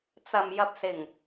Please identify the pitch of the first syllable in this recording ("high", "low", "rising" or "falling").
low